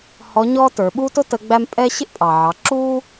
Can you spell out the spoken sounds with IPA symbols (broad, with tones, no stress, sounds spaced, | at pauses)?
h ɔ˧˥ ɲ ɔː˥ t ə˞˩˧ ɓ uː˥ t ʊ˥ t ə˧˥ ɡ͡b æ˥ m pʼ ɛ˥ ɕ ɪ˥ ʔ pʼ ɑ˩ ʕ ɑ˩˧ ǁ uː˥